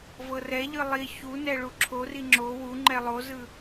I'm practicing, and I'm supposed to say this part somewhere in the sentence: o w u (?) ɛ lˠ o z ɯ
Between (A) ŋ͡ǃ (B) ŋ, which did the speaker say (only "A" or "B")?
A